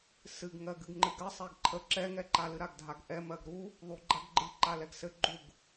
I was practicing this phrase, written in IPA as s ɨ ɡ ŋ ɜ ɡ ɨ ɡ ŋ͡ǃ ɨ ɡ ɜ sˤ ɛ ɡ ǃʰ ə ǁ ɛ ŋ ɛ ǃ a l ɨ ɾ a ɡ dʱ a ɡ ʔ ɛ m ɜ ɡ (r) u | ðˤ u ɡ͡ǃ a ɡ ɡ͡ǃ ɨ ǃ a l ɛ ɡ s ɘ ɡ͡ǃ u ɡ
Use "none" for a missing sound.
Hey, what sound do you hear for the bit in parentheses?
ɾ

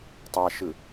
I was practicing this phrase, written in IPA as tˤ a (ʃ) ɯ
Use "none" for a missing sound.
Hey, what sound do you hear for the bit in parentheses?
ʃ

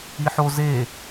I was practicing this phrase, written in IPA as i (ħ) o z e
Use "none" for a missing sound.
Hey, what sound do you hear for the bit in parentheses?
ħ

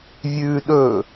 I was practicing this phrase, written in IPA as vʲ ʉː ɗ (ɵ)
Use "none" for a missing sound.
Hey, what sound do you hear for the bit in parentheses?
ɵ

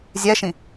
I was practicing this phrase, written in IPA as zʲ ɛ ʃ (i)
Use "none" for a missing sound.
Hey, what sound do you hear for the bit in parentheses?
ĩ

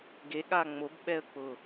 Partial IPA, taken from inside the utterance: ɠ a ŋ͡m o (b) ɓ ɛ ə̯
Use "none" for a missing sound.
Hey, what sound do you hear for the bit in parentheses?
b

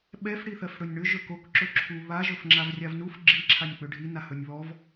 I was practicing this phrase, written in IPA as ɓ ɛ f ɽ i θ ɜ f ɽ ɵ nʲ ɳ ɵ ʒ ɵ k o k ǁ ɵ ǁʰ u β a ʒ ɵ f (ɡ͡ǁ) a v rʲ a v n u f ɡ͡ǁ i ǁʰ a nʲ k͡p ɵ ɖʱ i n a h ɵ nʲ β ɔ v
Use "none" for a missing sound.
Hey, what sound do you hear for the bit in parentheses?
ŋ͡ǁ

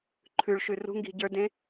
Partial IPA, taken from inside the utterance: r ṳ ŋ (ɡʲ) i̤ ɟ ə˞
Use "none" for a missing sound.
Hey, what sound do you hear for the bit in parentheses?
ɡ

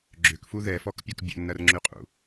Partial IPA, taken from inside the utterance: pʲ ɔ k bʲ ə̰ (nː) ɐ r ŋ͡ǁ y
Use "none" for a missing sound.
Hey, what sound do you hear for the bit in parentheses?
nː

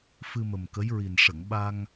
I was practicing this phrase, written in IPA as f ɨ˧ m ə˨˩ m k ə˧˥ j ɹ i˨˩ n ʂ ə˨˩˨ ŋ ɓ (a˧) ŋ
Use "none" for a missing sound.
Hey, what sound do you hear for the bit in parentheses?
a˧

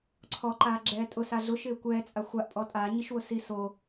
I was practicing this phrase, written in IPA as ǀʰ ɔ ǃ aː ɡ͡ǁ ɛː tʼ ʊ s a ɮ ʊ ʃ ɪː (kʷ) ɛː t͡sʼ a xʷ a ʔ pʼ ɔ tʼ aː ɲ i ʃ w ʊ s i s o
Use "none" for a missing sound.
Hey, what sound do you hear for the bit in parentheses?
kʷ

